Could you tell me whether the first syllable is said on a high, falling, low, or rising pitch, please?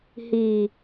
low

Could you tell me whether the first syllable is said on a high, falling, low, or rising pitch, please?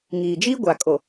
low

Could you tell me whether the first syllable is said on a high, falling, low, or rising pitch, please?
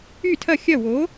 falling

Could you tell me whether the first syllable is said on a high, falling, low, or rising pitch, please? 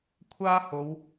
high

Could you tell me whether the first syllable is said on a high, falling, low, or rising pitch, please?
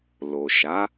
low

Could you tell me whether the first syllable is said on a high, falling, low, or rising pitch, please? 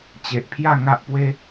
low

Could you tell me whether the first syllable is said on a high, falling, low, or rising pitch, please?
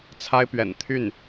high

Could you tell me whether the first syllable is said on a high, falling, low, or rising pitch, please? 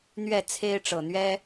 falling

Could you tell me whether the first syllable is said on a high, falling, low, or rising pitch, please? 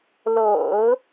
low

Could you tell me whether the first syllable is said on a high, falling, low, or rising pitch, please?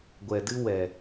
low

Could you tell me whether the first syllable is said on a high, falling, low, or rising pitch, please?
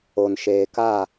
low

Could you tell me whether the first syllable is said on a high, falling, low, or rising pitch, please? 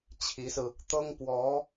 rising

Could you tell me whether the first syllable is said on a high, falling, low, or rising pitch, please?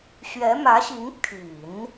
rising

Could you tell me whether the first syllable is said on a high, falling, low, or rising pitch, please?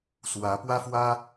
rising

